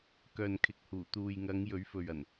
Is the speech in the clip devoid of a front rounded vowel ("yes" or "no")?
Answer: no